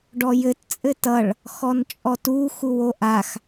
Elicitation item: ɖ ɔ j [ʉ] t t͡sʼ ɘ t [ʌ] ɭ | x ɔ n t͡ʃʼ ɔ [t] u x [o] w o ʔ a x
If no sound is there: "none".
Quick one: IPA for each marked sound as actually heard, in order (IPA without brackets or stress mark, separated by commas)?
ɘ, ʌ, t, u